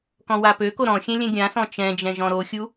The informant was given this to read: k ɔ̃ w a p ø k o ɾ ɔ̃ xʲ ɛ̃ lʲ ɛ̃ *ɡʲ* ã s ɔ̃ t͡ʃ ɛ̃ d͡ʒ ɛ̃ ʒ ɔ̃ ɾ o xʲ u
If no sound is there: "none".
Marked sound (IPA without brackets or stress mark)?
ɡʲ